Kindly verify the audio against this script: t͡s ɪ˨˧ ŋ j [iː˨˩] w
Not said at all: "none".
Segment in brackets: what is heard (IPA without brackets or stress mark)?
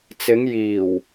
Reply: iː˨˩